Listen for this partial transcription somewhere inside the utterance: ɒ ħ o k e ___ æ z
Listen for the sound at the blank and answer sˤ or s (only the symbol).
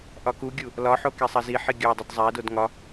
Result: sˤ